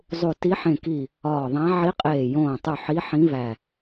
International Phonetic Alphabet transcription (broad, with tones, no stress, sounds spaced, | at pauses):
zˤ u˧˩ t i˧˥ ħ ẽ˧˩ k i˧˩ | ɒː˧˩ ðˤ æ̃˧˥ ʕ i˧˥ qʼ eː˧˩ j õː˧˩ tˤ u˧˩ ħ i˧˥ ħ ĩ˧˥ v æ˧˩